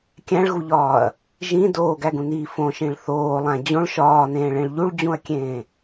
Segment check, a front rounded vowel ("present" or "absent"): absent